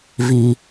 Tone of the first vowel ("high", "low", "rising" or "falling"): high